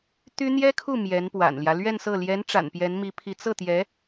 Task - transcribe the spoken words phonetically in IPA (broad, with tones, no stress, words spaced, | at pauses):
t̪y˥ n̪jɛ˥kʰu˥˩ mjɛ˧˥npwa̰˨˩nljä˦ lɥɛ˥˧nsɤ˥˩ ljɛ˧˥nʈ͡ʂa̰˨˩n pjɛ˧˥nmi˧˥pʰi˧˥ t͡sɤ˥˩t̪jɛ˧˥